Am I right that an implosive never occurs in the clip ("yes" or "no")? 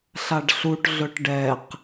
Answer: yes